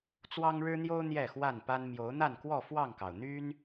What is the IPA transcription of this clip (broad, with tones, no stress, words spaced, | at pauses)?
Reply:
t͡swɑ˦ŋɻɻ̩˦n̪jo˦ʊ̯ n̪jɛ˥˨xwa˥˨npa˦n mjo˨˦ʊ̯n̪a˥˨nkwɔ˥˨ fwɑ˥˨ŋkɑ˩ʊ̯ n̪y˦n